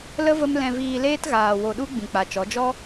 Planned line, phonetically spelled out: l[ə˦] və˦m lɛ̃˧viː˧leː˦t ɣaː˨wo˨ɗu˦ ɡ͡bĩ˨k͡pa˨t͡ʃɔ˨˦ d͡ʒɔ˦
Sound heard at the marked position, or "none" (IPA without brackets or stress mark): ə˦